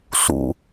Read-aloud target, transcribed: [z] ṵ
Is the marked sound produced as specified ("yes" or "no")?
no